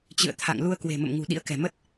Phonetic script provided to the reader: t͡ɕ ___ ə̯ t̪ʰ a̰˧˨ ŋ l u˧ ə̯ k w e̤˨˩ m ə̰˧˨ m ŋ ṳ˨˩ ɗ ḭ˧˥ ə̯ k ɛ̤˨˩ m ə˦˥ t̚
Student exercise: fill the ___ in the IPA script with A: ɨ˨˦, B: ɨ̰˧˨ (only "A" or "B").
B